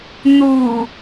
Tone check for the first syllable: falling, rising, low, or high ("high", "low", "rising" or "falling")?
low